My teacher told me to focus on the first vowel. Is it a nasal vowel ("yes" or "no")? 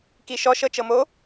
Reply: no